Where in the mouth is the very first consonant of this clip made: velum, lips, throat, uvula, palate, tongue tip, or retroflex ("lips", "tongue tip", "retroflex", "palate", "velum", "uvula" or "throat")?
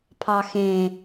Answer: lips